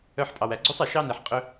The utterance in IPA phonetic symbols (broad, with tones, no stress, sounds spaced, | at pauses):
œ˧ ħ pʼ ɑ˩ w æ˩ ɡ͡ǀ u˥ sˤ ɛ˩ ʃ ɑ˥ n ɛ˩ ħ qʼ ɵ˧